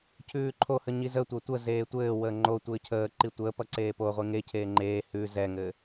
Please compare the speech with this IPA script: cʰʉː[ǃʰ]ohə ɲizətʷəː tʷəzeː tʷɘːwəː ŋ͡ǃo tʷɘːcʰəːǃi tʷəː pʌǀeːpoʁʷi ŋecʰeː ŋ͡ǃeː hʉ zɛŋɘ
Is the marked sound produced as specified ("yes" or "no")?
yes